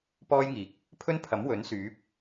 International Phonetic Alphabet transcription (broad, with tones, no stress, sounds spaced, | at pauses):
p ɔː˥ j ŋ iː˨˥ k̚ | pʰ ɵ˥ n pʰ ɐ˨˥ m w ɵ˨˥ n s yː˨˥ p̚